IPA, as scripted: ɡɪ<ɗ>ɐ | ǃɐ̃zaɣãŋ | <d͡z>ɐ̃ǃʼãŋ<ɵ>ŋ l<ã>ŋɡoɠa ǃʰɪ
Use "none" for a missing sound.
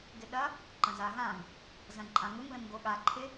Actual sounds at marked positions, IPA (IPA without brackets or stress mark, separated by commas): ɗ, z, ɵ, ə̃